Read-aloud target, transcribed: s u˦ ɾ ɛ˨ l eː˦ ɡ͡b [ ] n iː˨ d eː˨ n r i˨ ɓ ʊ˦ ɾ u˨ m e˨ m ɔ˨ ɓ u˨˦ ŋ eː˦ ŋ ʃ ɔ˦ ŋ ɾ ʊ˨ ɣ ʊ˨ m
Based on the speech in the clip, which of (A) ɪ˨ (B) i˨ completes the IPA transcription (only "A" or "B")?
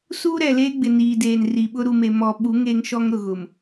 A